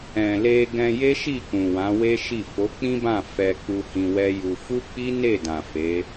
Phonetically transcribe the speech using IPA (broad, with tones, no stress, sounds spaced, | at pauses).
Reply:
ɛ̃˨ l e˧ ɡ ɛ̃˧ j e˦ ʃ i˦˨ k ũ˨ w ã˨˦ w e˦ ʃ i˦˨ f o˨˦ k͡p ĩ˦ b ã˦˨ f ɛ˧ k͡p u˧ h ĩ˧ w ɛ˦ j u˧ f u˦ k͡p i˦ n e˦˨ d ã˨ f e˨˦